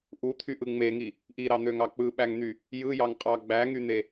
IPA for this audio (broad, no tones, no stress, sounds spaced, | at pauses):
ʔ u t̪ʰ y ʔ ɯ ŋ͡m e ŋ i | ʔ i ɾ ɑ n̪ ø ŋ ɑ k͡p ɯ ɓ æ ŋ n̪ y | j ɯ j ɑ ŋ qʼ ɑ ɡ͡b æ ŋ y n̪ e